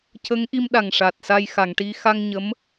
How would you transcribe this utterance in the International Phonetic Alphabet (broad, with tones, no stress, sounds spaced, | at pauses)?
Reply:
c ə˧˥ ŋ ʔ i˧ m ɗ a˨˩ ŋ ʂ a˨˩ t̚ s a˧ j x a˨˩˨ ŋ ʈ i˧ x a˧ ŋ ɲ ə˧˥ m